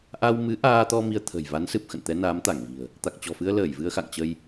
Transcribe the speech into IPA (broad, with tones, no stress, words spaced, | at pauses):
ʔa˧wmɨ˨˦ʔaː˧t̪ɔ˧ mi˧ə̯t̪ʰə̤˨˩j va˨˦nsɨ˨˩p̚ xə̰˧˨nt̪ɛ˨˦naː˨˦m t̪a˧˩ŋvi̤˨˩ə̯ | t̪a˨˩k̚t͡ɕɔ̤˨˩fɨ˧ə̯ ləː˧˩jvɨ˧ə̯xa̰˧˨ŋt͡ɕə˧j